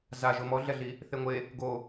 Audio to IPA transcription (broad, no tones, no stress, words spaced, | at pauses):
zaʒo mɔɮɛɮi | θeŋʷe | ɡo